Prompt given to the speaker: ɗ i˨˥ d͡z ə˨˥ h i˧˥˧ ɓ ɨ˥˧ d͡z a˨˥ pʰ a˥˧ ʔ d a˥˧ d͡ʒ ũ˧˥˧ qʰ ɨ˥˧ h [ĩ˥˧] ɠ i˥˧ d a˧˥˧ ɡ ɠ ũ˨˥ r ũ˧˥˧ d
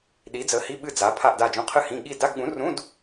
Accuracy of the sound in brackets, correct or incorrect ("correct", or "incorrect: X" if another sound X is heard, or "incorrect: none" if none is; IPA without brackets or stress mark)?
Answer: incorrect: ĩ˧˥˧